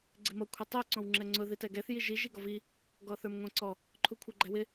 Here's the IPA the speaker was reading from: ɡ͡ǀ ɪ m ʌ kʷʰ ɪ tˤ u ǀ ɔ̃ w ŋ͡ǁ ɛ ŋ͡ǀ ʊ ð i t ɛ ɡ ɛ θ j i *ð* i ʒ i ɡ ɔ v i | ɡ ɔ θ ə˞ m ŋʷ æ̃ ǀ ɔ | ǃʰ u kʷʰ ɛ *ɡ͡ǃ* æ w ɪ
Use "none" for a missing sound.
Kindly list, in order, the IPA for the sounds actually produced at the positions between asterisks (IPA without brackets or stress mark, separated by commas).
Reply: ʒ, ɡ͡ǃ